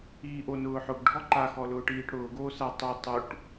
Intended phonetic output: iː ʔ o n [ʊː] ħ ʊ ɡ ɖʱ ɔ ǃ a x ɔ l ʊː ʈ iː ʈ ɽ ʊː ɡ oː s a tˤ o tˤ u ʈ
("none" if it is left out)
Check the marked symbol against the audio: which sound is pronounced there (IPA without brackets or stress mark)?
ʊː